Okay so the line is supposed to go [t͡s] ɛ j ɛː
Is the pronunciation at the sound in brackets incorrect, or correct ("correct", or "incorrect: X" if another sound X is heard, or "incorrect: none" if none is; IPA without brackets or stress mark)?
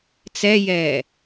correct